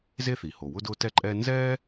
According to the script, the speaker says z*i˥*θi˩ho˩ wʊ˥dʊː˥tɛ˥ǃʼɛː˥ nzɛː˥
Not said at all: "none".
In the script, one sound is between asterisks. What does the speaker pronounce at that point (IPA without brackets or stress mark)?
e˥